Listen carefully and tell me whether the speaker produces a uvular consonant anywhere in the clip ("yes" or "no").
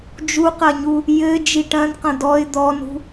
yes